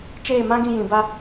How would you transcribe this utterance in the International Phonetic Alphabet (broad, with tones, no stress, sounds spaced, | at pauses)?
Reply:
t͡ʃ eː˦˨ m ã˦ ɡ ĩ˧ j ĩ˨ b a˧